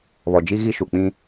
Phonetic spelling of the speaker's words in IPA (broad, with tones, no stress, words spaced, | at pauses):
βɔ˨d͡ʒi˦ ɣi˦ʃu˨k͡pĩ˦